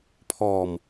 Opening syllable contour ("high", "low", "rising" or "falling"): low